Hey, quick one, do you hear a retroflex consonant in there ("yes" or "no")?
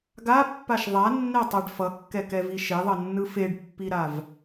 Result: yes